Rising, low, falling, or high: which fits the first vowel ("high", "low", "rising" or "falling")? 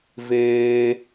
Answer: high